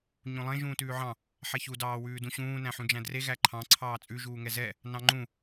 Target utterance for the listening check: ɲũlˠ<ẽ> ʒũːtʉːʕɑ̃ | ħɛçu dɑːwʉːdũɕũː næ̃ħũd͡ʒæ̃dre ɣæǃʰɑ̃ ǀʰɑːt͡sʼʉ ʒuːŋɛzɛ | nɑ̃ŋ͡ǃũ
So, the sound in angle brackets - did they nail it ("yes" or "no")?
yes